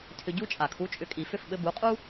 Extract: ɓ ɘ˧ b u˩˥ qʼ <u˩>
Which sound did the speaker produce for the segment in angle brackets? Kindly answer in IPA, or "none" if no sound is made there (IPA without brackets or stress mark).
u˥